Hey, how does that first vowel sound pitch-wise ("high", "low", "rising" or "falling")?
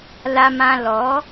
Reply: low